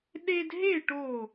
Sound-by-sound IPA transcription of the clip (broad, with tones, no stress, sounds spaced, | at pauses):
ɗ e˦ d ɦ e˥˨ ʈ o˧˩